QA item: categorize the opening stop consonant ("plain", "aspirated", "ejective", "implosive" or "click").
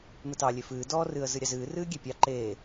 plain